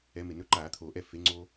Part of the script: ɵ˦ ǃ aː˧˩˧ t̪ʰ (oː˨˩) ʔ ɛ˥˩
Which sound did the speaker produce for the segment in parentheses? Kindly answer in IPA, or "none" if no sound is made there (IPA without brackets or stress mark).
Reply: oː˨˩